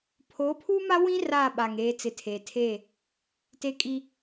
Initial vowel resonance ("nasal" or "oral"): oral